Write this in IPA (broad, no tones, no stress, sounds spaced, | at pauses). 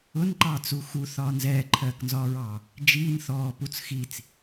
ʊ n ǃ ɑː t͡s u x u θ ɒː n z ɛː ǃʰ ɜː k n z ɒː ɹ ɑː | d͡ʒ iː n θ ɔː p u t͡s x i t͡s